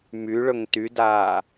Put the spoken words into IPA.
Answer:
m y ɭ ɵ ŋ t y d aː

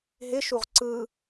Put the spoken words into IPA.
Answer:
ɦ ɪ ʃ u ʁ ǀ ɯ

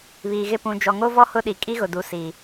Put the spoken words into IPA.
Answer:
β iː˨ ɣ ɪ˦˨ p ũ˨ d͡ʒ ɔ˨ ŋ o˦ v ɔ˦ h ʊ˦ ɗ i˨ kʼ i˦ ɣ ʊ˨ d u˨ s i˨

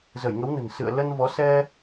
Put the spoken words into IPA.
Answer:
z ə˧˩ j ŋ ə˨˦ w n ə̤˨˩ n s ɨ̰˧˨ ə̯ l ə˧ n v ɔ˨˦ s ɛ˧

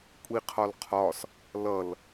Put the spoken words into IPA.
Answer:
kʷʼ i qʰ ɒ l qʰ ɒ s | l ʌ l

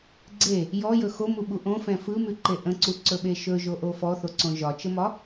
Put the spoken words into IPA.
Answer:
ɡ͡ǀ e | j ɔ j ɵ x o m u ɓ u ʔ õ f ɛ̃ f ɯ m ʉ ǃ e ʔ ə̃ ǀ u ǀ ɵ ɓ e ʃ ɵ ʒ o ʔ o f ɔ θ o ǀ õ ʒ ɒ t͡ʃ ə m ɒ

